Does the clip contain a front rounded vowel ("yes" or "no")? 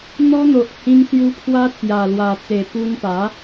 no